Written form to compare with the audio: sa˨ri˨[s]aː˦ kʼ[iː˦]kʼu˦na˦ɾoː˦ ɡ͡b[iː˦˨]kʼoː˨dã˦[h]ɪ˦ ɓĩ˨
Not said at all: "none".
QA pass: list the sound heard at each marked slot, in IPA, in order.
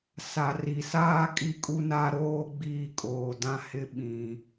s, i˦, iː˦˨, h

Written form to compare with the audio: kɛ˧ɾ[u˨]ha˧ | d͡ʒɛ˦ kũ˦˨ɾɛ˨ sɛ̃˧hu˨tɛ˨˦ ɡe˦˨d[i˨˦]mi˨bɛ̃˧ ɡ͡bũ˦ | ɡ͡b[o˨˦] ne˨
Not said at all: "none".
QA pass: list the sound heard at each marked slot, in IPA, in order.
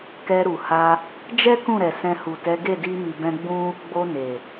u˨, i˧, o˧

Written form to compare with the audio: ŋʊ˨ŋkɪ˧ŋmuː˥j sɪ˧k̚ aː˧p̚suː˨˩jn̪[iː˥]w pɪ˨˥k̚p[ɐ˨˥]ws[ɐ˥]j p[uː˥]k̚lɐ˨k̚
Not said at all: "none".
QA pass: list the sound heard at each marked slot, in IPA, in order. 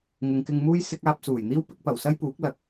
iː˥, ɐ˨˩, ɐ˥, uː˨˥

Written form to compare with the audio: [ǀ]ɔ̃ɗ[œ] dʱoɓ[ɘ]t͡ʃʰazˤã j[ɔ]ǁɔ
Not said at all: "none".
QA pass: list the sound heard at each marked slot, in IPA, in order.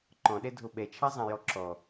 ǃ, ɛ, ɛ, ɔ

